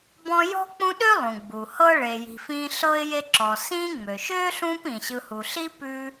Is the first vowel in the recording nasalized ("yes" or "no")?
yes